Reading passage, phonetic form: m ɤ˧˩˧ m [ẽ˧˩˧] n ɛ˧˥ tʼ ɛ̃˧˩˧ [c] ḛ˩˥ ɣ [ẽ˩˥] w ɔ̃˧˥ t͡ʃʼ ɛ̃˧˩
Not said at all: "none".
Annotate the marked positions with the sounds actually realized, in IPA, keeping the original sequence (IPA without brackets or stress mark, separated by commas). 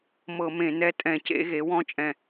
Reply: ẽ˧˩˧, c, e˩˥